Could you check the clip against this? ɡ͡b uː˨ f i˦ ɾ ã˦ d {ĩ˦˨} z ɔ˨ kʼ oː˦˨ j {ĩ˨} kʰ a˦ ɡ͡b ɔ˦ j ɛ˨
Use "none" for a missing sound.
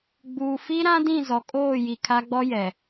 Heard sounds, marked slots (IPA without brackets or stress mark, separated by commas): ĩ˦˨, i˨